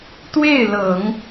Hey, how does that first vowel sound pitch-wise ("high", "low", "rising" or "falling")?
falling